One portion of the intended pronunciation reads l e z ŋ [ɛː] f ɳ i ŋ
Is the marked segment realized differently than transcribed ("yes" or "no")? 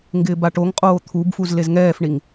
no